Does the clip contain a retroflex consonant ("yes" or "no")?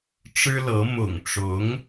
yes